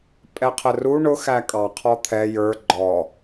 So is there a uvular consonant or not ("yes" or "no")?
yes